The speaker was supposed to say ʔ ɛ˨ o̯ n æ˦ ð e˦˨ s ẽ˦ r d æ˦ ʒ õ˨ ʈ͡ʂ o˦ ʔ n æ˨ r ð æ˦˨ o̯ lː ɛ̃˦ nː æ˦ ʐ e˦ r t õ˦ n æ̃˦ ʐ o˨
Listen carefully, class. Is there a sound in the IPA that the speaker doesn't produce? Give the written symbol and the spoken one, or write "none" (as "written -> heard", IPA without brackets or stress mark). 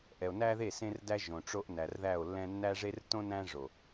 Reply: none